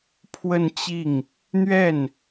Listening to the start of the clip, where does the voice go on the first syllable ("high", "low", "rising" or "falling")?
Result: falling